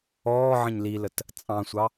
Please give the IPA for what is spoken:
ɔː ʕ ə̃ ɲ l i l ə t | t͡sʼ ɑ̃ sʷ ɑ

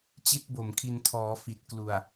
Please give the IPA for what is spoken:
t͡ɕ i˦˥ t̚ b o˨˩ m kʰ i˧ n tʰ ɔː˩˦ f i˨˩ t̚ k l u˨˩ a̯

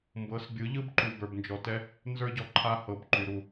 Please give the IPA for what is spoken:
m b ɤ˨˦ s bʲ ɯ˨˦ ʎ ɯ˦ b ǃ u˨ b ə˞˨ b n d͡ʒ ɔ˨ t ɛ˦ | n z ə˞˦ ɟ ɔ˨ ǃʰ a˦ h ɤ˨ b ǃ y˨ ɾ u˦˨

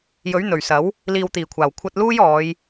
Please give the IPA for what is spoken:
j ɵ˨˥ ɥ n̪ ɵ˨˩ ɥ s ɐ˨˥ w | l iː˨ w t̪ iː˨˩ kʷʰ aː˨˩ w kʷʰ ɐ˧ t̚ l uː˥ j ɔː˨˧ j

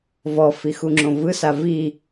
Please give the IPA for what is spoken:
v ɔ f i x u ŋ͡ǁ õ v ɯ s a v i

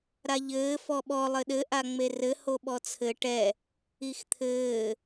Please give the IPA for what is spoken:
ɾ a ʎ ɘː f ɔ ɓ ɔ lˠ ɘ ɗ ɘ ʔ a ŋ͡m e r ɘ h o ɓ ɔ t͡sʰ ɘ ʈ ɛ | i x t̪ʰ ɘː

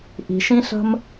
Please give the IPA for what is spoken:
ʔ i̤˩ ʃ ĩ˥ ɬ ə̤˥ m

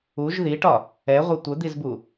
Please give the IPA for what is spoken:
u ʒ ð i ʈ ɒ | ɛ ʁʷ e tʷ ə d̪ i z b u

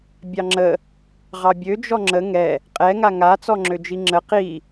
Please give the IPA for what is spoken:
bʲ ɑ ŋ͡ǁ ə | ʁ ɑ bʲ ø d͡ʒ ɔ ŋ͡ǁ ə ŋ ɛ | qʼ ɛ ŋ a ŋ a t͡s ɔ ŋ͡ǁ ø d͡ʒ i ŋ͡ǁ ə q i

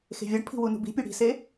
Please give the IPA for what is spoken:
x e̤ vʲ ɒ ɖ pʰ i̤ w u n ṳ b i̤ pʲ u ɽ i̤ s e

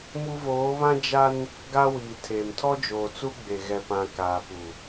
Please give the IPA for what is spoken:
m u˦ v oː˨˦ β ã˦ d͡ʒ a˦ n | ɡ a˦ w iː˨ tʰ e˨ m tʰ ɔ˦ d͡ʒ oː˨ t͡s u˦ ɡ͡b e˨ ɣ ɛ˨ p ã˨ k aː˨ p u˨

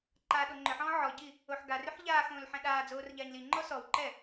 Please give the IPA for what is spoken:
ǃ aː ɗ o ŋ͡ǃ ʏ ħ ɔ̃ː ʕ ɔ ɟ i | o ħ ɡ a r ʏ ħ ʎ aː x õː l ħ ɛ̃ ɗ aː d͡z oː r ʎ aː ɲ l i ŋ͡ǃ ɔ s ɔ w ǃ ɛ

